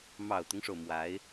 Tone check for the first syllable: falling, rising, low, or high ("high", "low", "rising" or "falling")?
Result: low